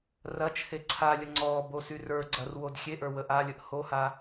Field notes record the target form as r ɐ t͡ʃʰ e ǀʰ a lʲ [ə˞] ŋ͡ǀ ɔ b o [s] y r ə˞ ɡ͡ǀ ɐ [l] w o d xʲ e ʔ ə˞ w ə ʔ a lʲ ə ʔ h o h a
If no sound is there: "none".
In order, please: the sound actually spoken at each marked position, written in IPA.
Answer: ə, s, r

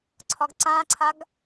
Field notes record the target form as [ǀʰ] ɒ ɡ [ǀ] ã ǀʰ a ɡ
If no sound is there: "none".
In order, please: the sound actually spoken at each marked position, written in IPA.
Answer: ǀʰ, ǀ

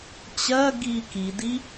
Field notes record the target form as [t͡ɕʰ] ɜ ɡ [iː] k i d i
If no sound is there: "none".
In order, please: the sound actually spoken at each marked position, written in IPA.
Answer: t͡ɕ, iː

